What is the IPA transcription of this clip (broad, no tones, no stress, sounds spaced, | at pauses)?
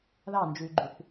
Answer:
ð ɑ n d͡ʒ ʉ y̯ ɡ͡ǃ y θ